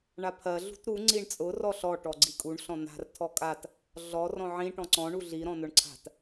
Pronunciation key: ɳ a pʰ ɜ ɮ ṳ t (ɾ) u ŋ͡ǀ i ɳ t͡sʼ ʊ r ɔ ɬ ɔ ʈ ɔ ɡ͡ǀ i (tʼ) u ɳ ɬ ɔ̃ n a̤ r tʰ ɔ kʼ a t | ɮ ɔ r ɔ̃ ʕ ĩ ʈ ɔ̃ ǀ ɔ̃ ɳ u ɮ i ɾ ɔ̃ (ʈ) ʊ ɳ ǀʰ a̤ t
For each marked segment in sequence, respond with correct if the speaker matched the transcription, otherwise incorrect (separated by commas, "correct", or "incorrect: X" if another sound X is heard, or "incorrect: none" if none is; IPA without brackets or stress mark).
correct, incorrect: kʼ, incorrect: n